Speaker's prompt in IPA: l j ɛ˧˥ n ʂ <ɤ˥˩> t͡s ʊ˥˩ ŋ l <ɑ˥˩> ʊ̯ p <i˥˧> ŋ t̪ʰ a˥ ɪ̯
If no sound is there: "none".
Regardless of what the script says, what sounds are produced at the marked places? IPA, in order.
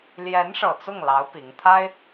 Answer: ɤ˨˩, ɑ˧˥, i˧˥

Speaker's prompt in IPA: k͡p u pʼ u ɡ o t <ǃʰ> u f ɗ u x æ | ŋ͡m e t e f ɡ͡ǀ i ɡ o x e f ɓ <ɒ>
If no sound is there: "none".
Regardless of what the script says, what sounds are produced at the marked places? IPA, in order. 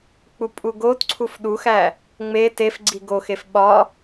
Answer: ǀʰ, ɒ

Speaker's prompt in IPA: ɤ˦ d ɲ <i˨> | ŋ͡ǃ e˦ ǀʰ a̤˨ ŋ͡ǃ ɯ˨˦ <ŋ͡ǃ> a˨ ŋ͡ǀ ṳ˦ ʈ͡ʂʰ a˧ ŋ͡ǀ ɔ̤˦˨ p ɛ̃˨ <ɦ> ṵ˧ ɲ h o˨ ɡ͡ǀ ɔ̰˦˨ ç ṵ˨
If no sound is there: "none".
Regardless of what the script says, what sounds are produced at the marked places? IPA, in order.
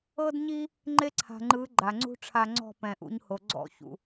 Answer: i˦, ɡ͡ǃ, ʔ

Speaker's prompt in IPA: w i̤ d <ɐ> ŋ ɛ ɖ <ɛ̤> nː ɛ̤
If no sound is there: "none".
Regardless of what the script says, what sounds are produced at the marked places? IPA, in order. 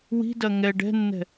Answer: ɐ, ɛ̤

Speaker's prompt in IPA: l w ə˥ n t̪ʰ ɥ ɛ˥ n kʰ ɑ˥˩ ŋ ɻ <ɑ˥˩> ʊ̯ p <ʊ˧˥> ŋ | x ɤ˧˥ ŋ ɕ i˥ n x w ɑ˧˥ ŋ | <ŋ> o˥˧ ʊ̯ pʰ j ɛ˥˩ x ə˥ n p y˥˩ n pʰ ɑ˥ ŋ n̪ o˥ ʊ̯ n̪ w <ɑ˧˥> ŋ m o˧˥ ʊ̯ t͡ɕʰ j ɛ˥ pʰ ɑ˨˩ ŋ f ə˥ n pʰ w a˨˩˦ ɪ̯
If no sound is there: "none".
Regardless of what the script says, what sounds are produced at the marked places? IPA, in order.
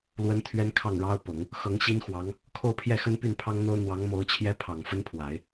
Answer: ɑ˥, ʊ˨˩˦, kʰ, ɑ˧˥

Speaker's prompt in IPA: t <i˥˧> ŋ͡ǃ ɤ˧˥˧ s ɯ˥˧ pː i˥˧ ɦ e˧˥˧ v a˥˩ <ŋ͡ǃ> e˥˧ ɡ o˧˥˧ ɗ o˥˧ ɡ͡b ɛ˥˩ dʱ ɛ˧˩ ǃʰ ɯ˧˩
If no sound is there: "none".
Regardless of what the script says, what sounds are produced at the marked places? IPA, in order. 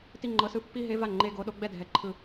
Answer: i˥˧, ŋ͡ǃ

